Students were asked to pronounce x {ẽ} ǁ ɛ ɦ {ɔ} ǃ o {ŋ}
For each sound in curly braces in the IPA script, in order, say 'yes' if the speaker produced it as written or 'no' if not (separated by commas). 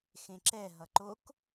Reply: yes, no, no